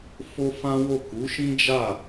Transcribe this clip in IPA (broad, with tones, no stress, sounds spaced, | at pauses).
f o˦ f ã˦ w o˦˨ k u˨˦ ʃ ĩ˦ d͡ʒ a˦˨